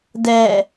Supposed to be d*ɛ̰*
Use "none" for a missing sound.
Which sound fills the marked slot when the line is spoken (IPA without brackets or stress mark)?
ɛ